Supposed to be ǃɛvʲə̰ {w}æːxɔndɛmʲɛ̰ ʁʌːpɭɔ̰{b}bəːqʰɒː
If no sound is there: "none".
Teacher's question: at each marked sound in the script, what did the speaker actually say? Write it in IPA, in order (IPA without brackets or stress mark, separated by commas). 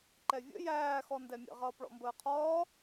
j, m